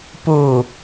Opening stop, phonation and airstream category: plain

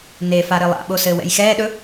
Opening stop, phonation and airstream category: implosive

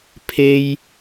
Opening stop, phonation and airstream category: aspirated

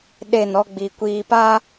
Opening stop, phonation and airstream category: implosive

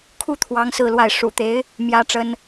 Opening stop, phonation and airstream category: aspirated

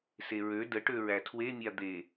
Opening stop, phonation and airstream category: plain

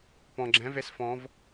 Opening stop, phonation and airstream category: plain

